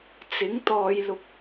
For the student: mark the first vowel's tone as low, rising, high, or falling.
rising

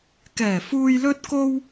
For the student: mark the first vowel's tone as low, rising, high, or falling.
low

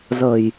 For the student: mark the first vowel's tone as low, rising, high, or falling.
low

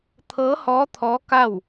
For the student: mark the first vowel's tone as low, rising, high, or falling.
rising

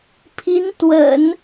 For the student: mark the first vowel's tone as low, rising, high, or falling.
rising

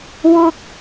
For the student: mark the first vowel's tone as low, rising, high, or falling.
high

